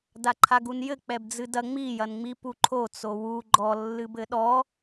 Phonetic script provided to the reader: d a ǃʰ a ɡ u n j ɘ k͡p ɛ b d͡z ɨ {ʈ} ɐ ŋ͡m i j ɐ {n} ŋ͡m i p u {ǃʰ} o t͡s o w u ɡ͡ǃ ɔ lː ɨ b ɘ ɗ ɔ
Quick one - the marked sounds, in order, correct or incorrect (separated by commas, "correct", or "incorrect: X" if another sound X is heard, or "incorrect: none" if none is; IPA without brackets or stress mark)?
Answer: incorrect: d, correct, correct